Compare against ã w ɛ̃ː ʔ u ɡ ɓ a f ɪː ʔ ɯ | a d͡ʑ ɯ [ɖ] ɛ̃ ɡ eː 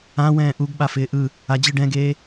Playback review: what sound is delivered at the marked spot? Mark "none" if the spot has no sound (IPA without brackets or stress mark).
ɖ